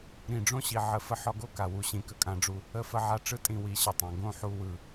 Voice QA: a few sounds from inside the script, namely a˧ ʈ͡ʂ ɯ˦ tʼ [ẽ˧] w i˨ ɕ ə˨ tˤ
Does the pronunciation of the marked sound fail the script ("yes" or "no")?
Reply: yes